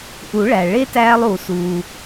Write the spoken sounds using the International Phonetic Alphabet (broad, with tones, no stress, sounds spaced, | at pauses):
ʔ u˨˩˦ ɭ æ˩ ɭ e˦ t æː˦ lˠ uː˩ s uː˩